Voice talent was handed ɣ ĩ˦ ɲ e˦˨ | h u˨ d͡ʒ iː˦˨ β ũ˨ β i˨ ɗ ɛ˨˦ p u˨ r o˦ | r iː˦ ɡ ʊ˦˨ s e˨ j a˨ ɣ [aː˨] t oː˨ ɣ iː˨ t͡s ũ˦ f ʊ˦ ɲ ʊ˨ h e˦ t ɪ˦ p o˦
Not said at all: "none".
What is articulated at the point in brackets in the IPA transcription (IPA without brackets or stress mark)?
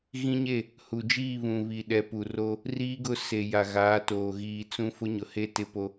aː˨˦